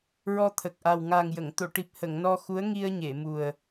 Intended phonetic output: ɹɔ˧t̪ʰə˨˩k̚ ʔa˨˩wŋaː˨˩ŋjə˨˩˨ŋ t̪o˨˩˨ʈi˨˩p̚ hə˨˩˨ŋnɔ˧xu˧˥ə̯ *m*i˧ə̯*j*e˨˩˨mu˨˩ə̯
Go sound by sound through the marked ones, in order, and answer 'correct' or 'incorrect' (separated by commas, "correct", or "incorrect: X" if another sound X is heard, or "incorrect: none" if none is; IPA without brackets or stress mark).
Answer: incorrect: ŋ, incorrect: ɲ